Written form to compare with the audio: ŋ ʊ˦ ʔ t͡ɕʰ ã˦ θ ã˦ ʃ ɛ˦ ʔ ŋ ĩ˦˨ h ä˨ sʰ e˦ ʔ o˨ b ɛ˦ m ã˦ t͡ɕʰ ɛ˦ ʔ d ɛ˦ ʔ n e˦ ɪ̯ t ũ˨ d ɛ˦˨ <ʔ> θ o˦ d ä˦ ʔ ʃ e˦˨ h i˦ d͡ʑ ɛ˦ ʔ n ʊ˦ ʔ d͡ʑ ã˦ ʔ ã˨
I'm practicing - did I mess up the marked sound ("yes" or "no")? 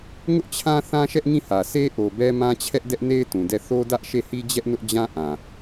yes